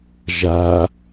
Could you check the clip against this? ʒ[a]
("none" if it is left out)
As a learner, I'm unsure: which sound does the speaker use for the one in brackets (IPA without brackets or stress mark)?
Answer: a